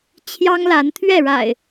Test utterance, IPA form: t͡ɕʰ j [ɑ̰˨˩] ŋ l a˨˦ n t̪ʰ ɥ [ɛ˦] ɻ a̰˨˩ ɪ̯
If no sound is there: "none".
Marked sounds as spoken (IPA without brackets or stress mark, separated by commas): ɑ˦, ɛ˥˨